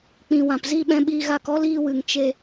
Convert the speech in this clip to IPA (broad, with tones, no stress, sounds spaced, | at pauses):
k͡p ĩ˨ w ã˨ p z i˦˨ ɓ ɛ̃˧ ɓ iː˧ ɣ a˧ k ɔ˦ l iː˧ w ɨ˨ ŋ t͡ʃ e˧